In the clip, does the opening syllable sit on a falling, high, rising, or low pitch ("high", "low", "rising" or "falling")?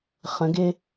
rising